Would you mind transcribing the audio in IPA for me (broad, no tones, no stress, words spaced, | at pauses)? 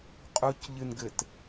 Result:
qʼucʎɨnɡɘt